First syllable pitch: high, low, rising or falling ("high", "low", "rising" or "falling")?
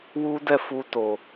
high